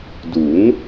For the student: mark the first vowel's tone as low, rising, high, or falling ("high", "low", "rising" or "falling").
rising